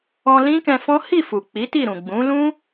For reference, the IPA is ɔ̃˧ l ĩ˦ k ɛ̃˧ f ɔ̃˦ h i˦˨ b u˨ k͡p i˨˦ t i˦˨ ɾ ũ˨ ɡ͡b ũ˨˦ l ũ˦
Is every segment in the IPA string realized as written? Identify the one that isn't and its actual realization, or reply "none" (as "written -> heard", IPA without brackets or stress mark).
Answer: b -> f